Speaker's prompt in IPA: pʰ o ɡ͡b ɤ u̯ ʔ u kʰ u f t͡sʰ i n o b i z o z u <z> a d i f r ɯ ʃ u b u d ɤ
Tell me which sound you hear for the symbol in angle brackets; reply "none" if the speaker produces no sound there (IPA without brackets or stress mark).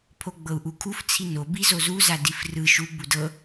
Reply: z